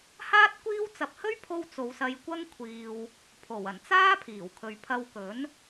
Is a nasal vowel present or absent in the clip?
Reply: absent